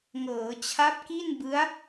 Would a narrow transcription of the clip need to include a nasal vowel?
no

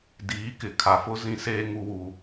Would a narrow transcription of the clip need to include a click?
no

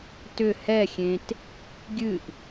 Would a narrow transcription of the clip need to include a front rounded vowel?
yes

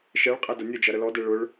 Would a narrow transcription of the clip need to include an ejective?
yes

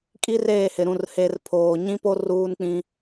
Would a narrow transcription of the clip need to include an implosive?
no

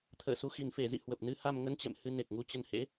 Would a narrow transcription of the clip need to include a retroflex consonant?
no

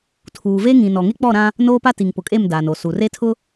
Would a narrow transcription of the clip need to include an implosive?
no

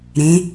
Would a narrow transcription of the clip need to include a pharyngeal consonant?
no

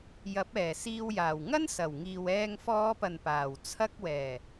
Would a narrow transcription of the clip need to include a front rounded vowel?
no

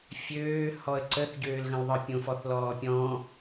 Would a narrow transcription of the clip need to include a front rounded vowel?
yes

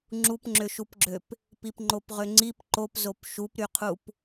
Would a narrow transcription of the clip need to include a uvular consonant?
yes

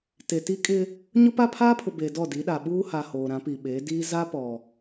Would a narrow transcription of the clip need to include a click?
no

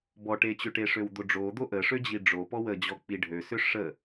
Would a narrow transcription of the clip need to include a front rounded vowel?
yes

